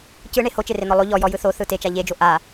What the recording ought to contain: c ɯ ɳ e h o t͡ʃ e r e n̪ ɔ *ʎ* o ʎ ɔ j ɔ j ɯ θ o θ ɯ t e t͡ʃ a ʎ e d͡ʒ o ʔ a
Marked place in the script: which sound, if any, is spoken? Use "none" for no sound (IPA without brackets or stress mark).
lˠ